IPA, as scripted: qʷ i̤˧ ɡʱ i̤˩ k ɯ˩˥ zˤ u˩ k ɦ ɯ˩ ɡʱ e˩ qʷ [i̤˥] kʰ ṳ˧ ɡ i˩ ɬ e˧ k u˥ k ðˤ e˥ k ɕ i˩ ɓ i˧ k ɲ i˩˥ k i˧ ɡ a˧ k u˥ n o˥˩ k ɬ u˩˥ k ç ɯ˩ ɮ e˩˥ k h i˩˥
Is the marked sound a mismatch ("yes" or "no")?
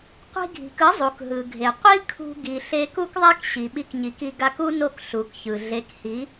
yes